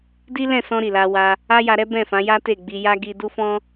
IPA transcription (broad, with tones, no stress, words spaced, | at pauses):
di˦lɛ̃˦˨sɔ̃˧ ɾi˨la˧wa˧ | a˦ja˧ɾɛ˦ bɛ̃˦˨fã˨˦ ja˦te˦˨ɡ͡bi˧ja˦ ɡi˧du˦fɔ̃˦